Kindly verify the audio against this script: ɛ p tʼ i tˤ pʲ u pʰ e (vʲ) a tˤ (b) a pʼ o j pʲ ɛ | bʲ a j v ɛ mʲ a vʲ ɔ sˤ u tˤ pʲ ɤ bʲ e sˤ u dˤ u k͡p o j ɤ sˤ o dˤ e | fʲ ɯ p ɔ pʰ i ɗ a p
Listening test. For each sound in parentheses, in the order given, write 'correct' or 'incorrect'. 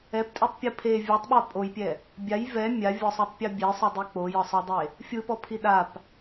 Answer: correct, incorrect

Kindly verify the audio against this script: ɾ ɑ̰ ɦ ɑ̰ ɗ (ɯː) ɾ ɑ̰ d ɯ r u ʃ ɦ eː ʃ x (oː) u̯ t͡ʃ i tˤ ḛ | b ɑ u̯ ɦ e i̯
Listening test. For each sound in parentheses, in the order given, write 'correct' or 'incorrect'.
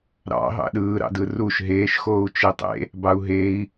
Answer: correct, correct

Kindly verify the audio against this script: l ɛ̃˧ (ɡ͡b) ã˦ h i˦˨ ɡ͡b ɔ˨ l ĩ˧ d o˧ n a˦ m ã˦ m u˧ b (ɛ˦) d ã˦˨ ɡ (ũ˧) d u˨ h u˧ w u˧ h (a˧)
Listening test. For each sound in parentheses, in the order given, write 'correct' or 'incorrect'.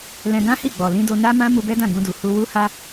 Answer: incorrect, correct, correct, correct

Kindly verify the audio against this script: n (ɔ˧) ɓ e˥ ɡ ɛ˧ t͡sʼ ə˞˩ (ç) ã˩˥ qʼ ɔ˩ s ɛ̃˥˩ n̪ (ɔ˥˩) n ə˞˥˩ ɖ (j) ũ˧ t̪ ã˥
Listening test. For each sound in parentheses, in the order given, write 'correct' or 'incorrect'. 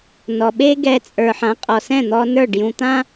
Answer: incorrect, incorrect, incorrect, correct

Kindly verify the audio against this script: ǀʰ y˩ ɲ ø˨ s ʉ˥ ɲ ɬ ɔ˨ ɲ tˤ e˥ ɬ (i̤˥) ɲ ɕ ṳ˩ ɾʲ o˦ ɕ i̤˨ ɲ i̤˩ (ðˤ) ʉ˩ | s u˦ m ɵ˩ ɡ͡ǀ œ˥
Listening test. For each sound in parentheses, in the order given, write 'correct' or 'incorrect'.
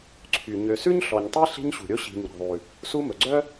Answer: incorrect, correct

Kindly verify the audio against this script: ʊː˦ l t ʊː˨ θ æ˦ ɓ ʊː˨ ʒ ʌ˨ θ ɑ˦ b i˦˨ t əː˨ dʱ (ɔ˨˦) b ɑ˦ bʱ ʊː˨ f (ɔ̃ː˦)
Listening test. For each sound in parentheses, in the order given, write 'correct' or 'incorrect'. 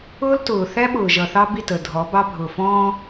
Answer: correct, correct

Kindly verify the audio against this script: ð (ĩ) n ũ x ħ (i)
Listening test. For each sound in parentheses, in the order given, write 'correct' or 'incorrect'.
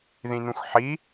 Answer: correct, correct

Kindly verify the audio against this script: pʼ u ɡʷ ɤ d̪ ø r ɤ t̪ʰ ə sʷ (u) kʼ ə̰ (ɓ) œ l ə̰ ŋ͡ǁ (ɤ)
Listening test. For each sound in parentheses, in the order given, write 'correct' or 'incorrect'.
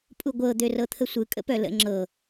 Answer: incorrect, incorrect, correct

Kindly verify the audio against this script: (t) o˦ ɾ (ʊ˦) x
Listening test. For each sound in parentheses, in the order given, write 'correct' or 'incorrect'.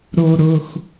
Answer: incorrect, correct

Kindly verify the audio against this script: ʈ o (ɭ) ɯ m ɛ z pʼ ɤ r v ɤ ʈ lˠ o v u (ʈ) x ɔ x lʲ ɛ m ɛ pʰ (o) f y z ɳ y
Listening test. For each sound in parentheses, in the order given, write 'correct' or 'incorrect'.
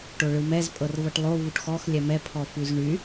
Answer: correct, correct, incorrect

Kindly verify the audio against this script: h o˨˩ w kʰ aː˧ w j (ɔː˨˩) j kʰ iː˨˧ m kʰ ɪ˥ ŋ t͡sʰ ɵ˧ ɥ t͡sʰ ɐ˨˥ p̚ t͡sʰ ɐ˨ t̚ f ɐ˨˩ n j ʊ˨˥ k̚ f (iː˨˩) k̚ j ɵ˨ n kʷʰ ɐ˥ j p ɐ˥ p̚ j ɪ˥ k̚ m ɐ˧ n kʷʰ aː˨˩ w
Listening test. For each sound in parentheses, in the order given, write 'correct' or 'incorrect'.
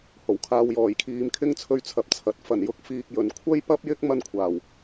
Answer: correct, incorrect

